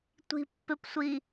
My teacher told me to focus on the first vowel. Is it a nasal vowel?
no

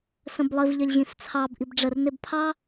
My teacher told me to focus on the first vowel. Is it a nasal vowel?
yes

